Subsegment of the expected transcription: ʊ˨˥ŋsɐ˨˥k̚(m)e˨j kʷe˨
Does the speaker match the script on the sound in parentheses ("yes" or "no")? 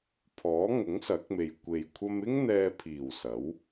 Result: yes